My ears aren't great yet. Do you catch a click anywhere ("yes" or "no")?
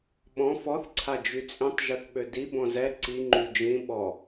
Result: yes